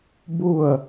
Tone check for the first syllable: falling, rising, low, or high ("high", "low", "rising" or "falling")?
falling